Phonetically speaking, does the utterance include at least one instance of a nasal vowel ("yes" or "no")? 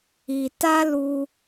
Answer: no